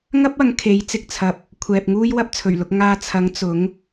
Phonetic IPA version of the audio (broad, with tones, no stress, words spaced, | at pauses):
ŋɐ˥p̚ɐ˨˧ŋ kʰe˨˥j t͡sɪ˨k̚t͡sʰɐ˨p̚ | kʷʰɛː˨p̚ ŋuː˥jwɐ˥p̚t͡sʰɵ˨˩ɥlʊ˧k̚ ŋaː˧t͡sʰɐ˨˥ŋ t͡sʊ˨˥ŋ